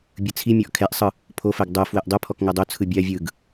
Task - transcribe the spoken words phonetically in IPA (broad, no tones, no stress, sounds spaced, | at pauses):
bʲ ɯ t͡sʰ i mʲ ɔ ʔ kʰ ɛ ʔ sˤ ɯ | pʰ o f ɛ ɡ dˤ o f w ɛ ʔ dˤ ɯ pʰ ɔ k ŋ ɤ dˤ o t͡sʰ ɯ bʲ a vʲ ɯ ɡ